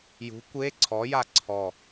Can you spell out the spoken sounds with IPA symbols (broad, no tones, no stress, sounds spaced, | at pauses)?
j ṳ kʷ e ǀʰ ɔ j a ǀʰ ɔ